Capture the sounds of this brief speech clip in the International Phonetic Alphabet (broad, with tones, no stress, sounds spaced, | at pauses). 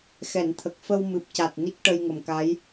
x ɛ˨˩˨ n t̪ʰ ə˨˩ k̚ f ə˧ w m ɨ˨˩ p̚ c a˨˩ t̚ n i˦˥ k̚ ʈ ə˧ j ŋ ə˨˩ m k a˧˥ j